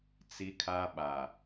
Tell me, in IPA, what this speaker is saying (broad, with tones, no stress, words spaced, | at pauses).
t͡si˦kʰa˦ɓa˨